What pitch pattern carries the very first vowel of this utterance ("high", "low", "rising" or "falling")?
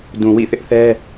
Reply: low